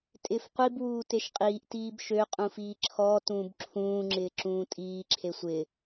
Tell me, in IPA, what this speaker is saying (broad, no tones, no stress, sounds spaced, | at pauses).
tʼ ɪː f qʷ i b w uː t e ʃ qʼ iː ʔ t iː b ʃ ø qʼ ũ f iː ǁʰ ɔː t ũː b ǁʰ ũː ŋ͡ǁ ɪː ǁ ũː tʼ iː ǁʰ e sʷ ɪː